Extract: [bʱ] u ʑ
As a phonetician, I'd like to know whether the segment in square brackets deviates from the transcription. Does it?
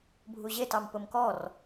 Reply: no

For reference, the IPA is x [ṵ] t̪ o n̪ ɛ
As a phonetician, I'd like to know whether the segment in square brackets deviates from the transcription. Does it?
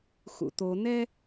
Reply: no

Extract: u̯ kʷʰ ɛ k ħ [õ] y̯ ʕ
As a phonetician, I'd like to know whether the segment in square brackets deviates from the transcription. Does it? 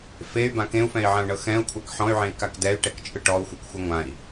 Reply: yes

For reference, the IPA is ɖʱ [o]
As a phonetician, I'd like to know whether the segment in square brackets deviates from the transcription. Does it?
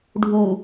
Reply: yes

